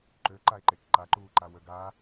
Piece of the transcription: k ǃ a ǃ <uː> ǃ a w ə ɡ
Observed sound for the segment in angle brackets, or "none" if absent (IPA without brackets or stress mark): uː